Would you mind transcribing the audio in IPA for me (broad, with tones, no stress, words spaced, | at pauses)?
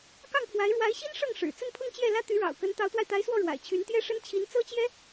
kɑ˥˩ŋpʰwa˧˥ɪ̯ ɻwa˧˥ɪ̯ɕi˥n ʂɤ˥˩ŋʂɻ̩˨˩ t͡sə˥˧npʰʊ˥˧ŋ t͡ɕjɛ˥˩lä˥ t̪y˧˥ɻɑ̰˨˩ʊ̯kə˧˥n t̪ɑ˧˥ʊ̯t̪wa˧ɪ̯t̪a˧˥ɪ̯swɔ˥˩ ɻwa̰˨˩ɪ̯t͡ɕʰy˧˥n t̪jɛ˥ʂə˥n t͡ɕʰi˧˥n t͡sɤ˥t͡ɕjɛ˥